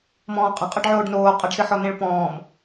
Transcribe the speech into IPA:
m ɔ̃ː qʼ ə̃ qʼ ə ɖ ʕ oː ɖ n oː qʼ ə ɖ s ɨ ħ ɔ n ẽ ɭ p ɔ̃ː m

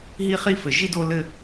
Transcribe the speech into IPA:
ɦ i˦ χ i˦ f ɘ˨ ʒ i˦ d o˦ l ɘ˦

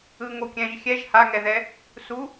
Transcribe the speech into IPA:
ɯ ŋ o kʲ ɛ̃ ʒ xʲ ɛ ʒ h a ŋ ɛ ð ɛ | s u

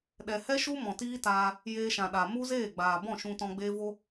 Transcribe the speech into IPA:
ɗ ɛ˨ h ɛ˦ ʃ u˦ m ɔ̃˨ t iː˦ t aː˧ | j eː˧ ʃ ã˨ ɗ a˨ m u˦ z eː˦˨ ɡ͡b aː˨ b ɔ̃˦˨ ʃ ũ˧ t ɔ̃˧ ɡ͡b eː˦ v o˦

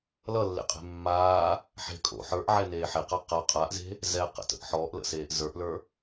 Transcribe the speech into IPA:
l ʌ lː ḛ qʼ e̤ mː aː | ħ e̤ kʼ o̰ ħ ə˞ ʔ ʕ ɛ n eː ħ e q a q a qʼ a ʔ z e̤ | z ɛ q ə̰ t ə̰ ʔ ħ ɔ ʔ l ə̰ s eː ʔ z ə˞ ʔ l ə˞

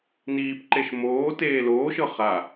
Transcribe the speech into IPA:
n iː p ǃ e ʃ m oː t eː l oː ʃ ɤ χ a

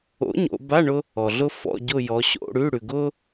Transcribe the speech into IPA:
o̰˨˥ ɲ o̰˩˧ b a˧˥˧ ɳ ʊ˥ | ɔ˩ ɮ ʊ˥ f ɔ̰˧˥˧ ɟ ʊ˦˨ j ɔ˩˧ ɕ o̰˧˥˧ ɽ ʉ˧˥˧ ɽ ʉ˩ ɡ ʊ˥

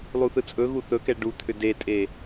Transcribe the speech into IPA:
lˠ u θ ɯ t͡sʼ ɵ ɣ u θ ɵ k ɛ ɖ u t̪ʰ ʏ d e tʼ e

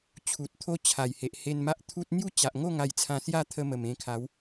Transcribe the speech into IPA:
t͡ɕʰ u˨ t̚ t̪ʰ o˦ t͡ɕʰ a˨˩ j h e˨ ʔ h e˧ n m a˦ ʔ t̪ʰ u˦ t̚ n̪ j u˥˧ t͡ɕ a˨ ʔ ŋ o˥˧ ŋ a˧ j t͡sʰ ã˧ s j a˥˧ t̪ʰ ə˧ m ə˨˩ m ẽ˧ kʰ a˨˦ w

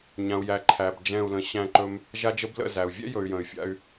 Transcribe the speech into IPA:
ɲ ã˨ u̯ j æ˨ ǃʰ æ˨ b d͡ʒ ɛ̃˦˨ u̯ l ə̃˧ ɕ æ̃˧ ǃ ɵ˧ m | ʒ a˦ d͡ʒ ə˦ b l ə̰˧ z æ˨ u̯ vʲ ɛ̰˦ j ɵ˨ y̯ j ə̃˨ y̯ fʲ a̰˧ y̯

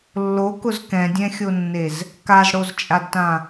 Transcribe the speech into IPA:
lː o k ʊ z k ɛ̃ dʲ ɛ̃ xʲ o nː e z | k a z ɽ o z t͡ʃʼ a d t ã

